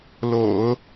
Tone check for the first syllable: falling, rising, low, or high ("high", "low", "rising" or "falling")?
low